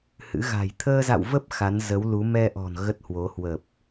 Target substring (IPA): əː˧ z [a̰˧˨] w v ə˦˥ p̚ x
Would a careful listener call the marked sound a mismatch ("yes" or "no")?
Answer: no